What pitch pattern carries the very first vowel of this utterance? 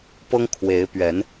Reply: high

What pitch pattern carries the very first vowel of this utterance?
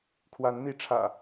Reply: rising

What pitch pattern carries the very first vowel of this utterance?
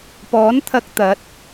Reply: rising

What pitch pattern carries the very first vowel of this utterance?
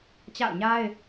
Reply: falling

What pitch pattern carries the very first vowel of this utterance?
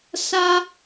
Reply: high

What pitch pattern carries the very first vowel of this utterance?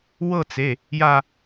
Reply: falling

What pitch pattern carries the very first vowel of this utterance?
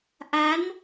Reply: rising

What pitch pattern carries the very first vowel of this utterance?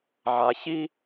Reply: low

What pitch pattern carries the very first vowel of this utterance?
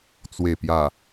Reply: low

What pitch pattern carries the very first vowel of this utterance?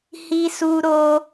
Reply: high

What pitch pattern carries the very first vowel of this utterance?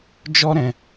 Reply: high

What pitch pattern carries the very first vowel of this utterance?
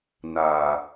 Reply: low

